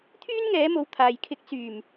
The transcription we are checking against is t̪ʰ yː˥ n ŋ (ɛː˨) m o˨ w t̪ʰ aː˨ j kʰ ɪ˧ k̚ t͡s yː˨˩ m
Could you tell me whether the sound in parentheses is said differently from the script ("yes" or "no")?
yes